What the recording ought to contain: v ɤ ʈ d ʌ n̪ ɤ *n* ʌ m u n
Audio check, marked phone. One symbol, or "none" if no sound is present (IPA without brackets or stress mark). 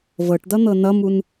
n